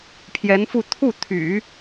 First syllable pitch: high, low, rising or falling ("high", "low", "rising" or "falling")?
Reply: rising